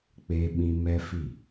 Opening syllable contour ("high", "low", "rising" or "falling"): high